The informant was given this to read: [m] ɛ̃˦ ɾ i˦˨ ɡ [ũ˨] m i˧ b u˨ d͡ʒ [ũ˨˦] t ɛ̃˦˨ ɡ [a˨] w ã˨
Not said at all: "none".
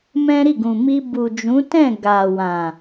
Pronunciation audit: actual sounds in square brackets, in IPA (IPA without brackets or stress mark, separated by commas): m, ũ˨, ũ˨˦, a˨